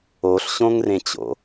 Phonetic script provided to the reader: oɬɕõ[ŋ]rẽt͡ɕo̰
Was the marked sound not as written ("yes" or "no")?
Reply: no